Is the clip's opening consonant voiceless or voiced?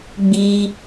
voiced